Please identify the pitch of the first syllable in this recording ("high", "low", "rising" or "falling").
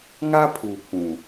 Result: high